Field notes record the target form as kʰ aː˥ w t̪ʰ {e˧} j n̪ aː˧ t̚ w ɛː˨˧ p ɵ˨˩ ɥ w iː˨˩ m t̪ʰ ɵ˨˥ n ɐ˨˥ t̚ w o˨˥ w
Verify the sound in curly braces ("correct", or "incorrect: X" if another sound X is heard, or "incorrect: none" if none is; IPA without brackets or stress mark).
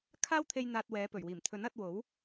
correct